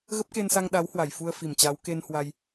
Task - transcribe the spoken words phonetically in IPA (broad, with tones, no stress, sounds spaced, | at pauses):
ɣ ə˦˥ p̚ k e˧ n s a˧ ŋ ɗ a˨˦ w h w a˧˩ j f u˧ ə̯ f i˧˩ m t͡ɕ a˨˦ w k e˧ n h w a˧ j